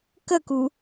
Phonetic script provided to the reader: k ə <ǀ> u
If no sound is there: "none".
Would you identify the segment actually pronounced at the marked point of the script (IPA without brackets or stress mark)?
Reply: k